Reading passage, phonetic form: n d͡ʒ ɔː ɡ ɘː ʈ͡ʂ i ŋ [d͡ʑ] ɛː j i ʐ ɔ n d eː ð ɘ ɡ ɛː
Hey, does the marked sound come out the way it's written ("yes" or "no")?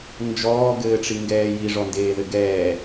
no